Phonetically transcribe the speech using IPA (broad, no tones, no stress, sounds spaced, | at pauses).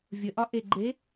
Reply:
vʲ ə ʔ ɒ ʔ e ɡ͡ǃ e